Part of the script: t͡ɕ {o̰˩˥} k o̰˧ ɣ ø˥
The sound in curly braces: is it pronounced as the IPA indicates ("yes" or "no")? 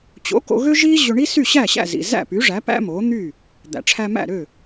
yes